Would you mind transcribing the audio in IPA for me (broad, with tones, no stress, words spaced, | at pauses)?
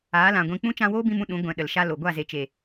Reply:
aː˨˦lã˨ɡʷĩ˧ k͡pũ˦ t͡ʃã˧woː˦bĩ˧mũ˧ ɗũ˨˦ ɡʷɛ̃˨ ɗə˨lʃa˦lo˨ ɡʷa˦˨ze˨t͡ʃe˨